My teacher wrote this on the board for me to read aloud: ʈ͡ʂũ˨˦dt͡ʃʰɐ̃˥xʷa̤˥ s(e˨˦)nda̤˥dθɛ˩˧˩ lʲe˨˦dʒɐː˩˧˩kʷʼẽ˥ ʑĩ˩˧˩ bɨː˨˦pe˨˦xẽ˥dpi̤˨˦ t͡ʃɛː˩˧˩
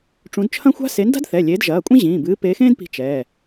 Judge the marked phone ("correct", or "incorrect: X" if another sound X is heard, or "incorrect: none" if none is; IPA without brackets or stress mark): correct